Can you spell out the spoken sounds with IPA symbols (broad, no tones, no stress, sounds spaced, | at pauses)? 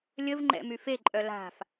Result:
lʲ ə v ŋ͡ǃ ɛ̰ m y f e ǃʼ œ l a̤ f